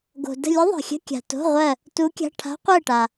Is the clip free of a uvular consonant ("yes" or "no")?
no